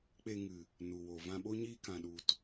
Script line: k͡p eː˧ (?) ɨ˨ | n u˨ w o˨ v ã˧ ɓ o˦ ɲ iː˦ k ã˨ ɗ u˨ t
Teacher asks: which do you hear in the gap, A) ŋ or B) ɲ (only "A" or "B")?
A